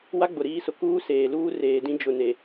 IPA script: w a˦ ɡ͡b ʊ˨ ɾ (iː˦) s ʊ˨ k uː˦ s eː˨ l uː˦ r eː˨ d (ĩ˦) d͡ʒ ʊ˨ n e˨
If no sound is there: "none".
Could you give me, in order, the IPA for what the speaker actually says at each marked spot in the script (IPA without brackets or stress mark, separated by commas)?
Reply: iː˦, ĩ˦